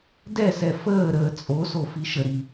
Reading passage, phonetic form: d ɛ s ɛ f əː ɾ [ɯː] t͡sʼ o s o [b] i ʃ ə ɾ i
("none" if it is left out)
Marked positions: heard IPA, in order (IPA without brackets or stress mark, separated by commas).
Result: əː, f